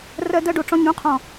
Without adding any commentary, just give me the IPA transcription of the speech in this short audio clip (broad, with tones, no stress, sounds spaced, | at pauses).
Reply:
r ɜ˧ d ɜ˧ ɖ o˨ ʈ͡ʂ ɔ̃˧ ɲ ũ˨˦ qʰ ɔ̃˨